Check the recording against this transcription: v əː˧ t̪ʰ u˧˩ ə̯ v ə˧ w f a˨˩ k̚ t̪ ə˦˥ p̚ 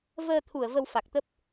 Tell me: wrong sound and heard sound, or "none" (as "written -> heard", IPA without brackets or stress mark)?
none